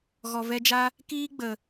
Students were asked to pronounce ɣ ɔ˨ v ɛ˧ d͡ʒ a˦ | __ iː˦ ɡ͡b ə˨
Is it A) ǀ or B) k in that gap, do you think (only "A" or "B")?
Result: B